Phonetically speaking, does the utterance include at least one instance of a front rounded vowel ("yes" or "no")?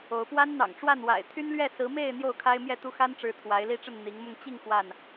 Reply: yes